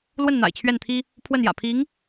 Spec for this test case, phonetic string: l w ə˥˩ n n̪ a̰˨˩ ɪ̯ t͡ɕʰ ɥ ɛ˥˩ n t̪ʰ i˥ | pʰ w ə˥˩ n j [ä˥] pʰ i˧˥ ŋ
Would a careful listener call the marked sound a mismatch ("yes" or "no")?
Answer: yes